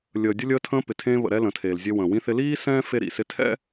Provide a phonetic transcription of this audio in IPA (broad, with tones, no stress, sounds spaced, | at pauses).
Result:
lʲ əː˨ dʲ ə˧ lʲ əː˧ tʰ ə̃ː˧ p ɪ˨ tʰ ẽː˧ β ə̰˨ ɾ ɛ˧ l ə̃˨ tʰ eː˨ l zʲ e˧ w ə̃ː˨ w ĩ˧ θ ɪ˧ l iː˦ s ɛ̃ː˦ f e˦ ɾ ḭ˨ s ɪ˦ tʰ ɛ̰˦